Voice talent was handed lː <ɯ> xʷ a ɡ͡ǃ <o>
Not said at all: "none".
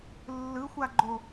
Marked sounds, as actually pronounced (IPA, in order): ɯ, o

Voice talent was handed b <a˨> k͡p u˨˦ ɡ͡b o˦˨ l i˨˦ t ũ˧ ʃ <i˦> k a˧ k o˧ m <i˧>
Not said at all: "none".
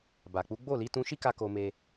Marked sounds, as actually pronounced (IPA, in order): a˨, i˦, e˧

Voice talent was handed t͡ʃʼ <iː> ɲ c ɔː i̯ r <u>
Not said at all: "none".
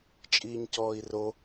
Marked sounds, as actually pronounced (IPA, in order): iː, o

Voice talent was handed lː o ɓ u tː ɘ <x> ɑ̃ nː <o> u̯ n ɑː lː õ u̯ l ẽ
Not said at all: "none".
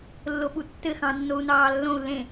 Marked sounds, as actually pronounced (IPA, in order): x, o

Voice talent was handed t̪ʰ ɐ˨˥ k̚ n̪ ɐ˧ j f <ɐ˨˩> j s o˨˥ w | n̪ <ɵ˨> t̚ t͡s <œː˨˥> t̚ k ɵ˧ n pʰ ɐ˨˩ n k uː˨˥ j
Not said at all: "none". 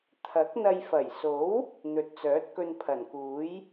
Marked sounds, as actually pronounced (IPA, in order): ɐ˨˩, ɵ˨, œː˨˥

